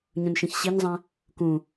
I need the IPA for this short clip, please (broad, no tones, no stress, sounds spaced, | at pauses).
ɲ ũ n ʃ ĩ ç ɕ i ɲ zˤ ɛ̃ | k ũ